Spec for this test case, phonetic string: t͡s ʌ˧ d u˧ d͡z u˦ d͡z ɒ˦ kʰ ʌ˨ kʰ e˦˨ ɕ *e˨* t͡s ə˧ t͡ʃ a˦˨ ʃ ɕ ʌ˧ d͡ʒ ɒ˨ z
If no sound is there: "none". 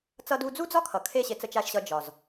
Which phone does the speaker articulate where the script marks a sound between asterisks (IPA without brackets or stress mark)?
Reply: e˧